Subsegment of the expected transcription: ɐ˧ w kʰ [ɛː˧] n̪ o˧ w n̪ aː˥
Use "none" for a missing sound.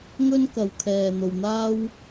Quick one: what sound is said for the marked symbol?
ɛː˧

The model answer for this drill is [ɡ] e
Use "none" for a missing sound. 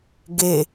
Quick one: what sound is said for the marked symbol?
ɡ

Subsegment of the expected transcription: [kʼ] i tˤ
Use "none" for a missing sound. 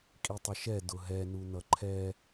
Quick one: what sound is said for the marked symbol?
kʼ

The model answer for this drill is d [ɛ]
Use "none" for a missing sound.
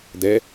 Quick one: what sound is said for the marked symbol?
ɛ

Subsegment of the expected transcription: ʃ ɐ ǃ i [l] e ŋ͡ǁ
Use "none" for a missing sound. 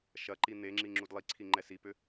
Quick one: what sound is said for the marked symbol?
n̪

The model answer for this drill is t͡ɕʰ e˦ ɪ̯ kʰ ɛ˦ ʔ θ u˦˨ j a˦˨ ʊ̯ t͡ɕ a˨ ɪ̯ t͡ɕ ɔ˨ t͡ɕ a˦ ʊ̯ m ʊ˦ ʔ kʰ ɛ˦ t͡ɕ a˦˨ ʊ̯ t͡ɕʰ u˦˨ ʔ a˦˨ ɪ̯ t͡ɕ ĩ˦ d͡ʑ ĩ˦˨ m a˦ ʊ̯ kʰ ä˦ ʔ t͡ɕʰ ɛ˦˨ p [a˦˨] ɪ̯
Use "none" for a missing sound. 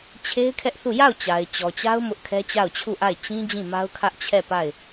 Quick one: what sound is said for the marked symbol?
a˦˨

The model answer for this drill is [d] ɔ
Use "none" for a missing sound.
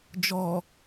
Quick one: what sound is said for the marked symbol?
d͡ʒ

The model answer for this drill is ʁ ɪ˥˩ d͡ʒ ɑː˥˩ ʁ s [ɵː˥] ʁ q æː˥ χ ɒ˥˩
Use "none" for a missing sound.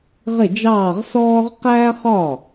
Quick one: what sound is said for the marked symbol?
ɔː˥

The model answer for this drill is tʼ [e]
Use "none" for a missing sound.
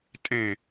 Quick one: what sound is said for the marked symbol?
ẽ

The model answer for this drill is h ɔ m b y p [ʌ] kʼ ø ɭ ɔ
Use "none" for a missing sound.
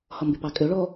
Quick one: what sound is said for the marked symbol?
ɑ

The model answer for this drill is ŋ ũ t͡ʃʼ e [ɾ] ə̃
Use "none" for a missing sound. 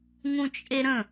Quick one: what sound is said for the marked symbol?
ɾ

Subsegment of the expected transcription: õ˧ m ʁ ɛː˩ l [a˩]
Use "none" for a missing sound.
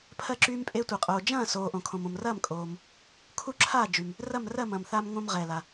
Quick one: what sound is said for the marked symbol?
a˩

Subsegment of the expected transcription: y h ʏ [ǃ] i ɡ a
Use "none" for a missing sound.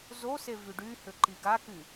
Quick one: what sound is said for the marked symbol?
ǃ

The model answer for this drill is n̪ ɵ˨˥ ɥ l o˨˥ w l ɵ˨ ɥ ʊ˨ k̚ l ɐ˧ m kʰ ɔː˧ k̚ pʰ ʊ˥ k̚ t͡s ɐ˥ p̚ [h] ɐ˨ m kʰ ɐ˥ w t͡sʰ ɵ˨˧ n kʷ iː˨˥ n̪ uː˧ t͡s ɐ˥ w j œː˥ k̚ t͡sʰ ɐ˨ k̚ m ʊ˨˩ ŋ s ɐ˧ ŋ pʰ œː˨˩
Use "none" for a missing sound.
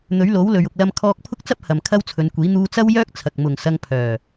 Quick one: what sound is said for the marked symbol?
h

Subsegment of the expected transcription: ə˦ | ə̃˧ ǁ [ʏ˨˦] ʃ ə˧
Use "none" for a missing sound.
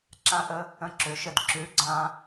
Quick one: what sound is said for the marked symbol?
ʏ˨˦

